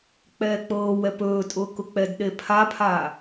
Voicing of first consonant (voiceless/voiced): voiceless